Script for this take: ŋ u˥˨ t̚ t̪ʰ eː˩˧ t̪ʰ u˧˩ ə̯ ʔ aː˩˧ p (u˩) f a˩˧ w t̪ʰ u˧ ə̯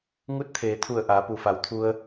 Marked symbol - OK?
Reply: yes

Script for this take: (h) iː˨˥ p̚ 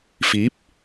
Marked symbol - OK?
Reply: no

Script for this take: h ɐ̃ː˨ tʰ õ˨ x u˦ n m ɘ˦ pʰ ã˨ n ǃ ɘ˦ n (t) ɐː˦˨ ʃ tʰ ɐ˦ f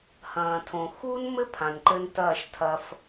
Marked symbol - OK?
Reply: yes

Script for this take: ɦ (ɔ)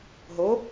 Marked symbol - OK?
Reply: no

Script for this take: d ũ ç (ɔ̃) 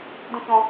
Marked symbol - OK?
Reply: no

